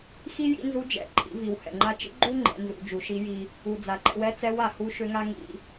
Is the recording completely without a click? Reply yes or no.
no